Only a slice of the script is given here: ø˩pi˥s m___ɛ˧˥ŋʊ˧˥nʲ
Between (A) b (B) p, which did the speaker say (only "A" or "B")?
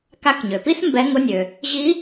A